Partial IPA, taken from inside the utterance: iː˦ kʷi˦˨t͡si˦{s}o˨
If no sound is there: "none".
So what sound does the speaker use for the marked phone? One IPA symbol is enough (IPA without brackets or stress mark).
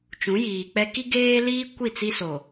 s